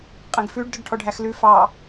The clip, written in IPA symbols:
qʼ ɛ̃ ɡ f ʉ ɖ d ɵ ɖ ʈʰ ɔ ɖʱ æ x l ʉ f ɑ

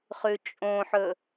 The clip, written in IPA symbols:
χ ʉ t͡ʃʼ õ ħ ɵ

